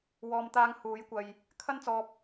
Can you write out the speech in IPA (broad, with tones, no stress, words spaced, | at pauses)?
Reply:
wɔː˨m t̪aː˨˧ŋ huː˨˥jkʷɐ˧j | kʰɐ˥nt͡sɔː˧p̚